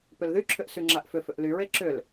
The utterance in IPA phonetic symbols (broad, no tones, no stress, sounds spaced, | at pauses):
p ʏ l ð y ǁʰ ʏ ʔ s y ŋ͡ǁ a ʔ f ʏ f ʏ ʔ l y ɹ e ǁ ʏ l